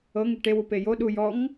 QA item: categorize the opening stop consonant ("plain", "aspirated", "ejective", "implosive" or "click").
plain